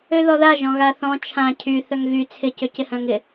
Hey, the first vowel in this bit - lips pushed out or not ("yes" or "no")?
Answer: yes